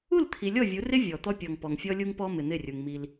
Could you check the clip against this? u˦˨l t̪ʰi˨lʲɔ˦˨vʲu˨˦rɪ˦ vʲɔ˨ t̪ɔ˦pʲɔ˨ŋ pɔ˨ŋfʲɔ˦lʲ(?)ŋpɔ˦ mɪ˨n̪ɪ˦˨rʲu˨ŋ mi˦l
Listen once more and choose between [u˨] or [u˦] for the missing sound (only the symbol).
u˦